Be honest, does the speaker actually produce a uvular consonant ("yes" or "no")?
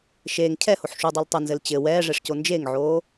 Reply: no